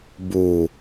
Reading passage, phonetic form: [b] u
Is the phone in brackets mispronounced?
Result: no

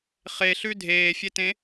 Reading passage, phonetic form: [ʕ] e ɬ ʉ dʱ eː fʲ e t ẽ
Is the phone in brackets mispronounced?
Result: yes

